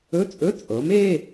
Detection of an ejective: present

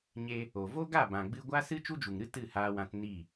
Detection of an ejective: absent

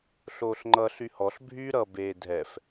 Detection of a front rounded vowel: present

